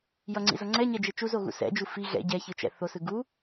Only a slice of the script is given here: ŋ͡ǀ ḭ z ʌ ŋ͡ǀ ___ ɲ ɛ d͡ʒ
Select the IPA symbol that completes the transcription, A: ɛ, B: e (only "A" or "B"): A